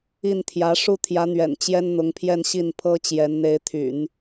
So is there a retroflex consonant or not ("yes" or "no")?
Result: yes